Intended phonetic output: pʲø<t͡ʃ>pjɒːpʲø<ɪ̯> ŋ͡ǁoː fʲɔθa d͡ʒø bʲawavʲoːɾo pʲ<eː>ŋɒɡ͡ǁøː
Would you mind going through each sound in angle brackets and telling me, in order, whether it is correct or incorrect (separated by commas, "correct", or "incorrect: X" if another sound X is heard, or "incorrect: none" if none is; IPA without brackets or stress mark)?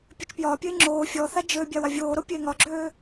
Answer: correct, correct, correct